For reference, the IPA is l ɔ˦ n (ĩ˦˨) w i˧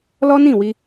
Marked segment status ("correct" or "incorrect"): correct